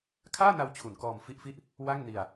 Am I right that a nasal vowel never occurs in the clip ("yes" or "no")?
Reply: yes